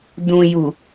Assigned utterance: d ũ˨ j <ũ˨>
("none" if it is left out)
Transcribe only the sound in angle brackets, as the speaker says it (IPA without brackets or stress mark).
u˨